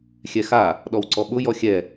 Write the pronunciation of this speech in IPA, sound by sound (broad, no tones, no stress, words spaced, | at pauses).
xʲɛxa | ɗɔwǀɔɓʊ jɔxʲɛ